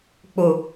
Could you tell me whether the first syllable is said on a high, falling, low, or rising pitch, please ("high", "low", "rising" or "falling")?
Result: low